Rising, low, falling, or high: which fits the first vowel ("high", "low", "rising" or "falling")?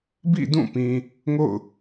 falling